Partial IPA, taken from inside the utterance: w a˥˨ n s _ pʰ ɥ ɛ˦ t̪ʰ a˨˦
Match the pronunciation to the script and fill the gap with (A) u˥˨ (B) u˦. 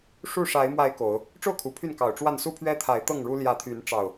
B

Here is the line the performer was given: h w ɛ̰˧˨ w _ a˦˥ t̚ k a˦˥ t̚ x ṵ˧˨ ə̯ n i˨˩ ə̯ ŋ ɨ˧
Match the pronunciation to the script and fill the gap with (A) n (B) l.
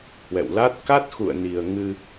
B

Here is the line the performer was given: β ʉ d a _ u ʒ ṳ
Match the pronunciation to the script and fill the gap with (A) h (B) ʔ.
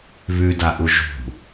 B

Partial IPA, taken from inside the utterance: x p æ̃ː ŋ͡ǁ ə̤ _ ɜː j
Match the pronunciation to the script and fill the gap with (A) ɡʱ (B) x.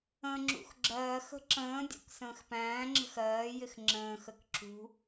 B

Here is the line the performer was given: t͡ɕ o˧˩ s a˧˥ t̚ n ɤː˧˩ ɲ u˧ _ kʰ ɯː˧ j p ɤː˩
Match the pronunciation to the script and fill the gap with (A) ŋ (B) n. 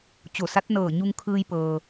A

